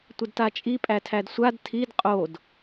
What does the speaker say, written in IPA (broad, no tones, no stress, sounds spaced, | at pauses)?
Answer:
tʷ ə d t a t͡ʃʼ i pʼ æ tʰ æ d sʷ a d tʰ i d qʼ o d